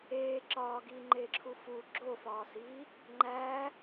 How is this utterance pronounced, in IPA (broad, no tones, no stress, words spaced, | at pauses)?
eː ǁɒːɡiːŋ͡ǃeːǁʰu fu ɡ͡ǁofɒːsiː | ŋ͡ǃæ